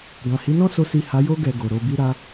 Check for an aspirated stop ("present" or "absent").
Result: absent